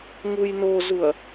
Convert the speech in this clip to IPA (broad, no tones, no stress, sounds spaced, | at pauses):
ŋ u j n o z u ɐ̯